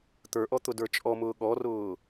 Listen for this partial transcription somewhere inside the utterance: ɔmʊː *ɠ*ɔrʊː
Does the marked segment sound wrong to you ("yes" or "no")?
no